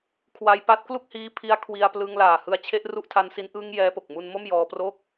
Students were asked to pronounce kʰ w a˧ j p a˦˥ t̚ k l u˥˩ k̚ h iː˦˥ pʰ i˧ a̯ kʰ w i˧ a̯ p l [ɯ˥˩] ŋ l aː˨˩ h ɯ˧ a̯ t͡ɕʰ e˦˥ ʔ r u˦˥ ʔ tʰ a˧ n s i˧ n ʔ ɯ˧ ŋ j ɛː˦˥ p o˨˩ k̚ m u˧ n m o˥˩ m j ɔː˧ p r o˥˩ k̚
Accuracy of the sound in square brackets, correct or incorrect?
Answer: incorrect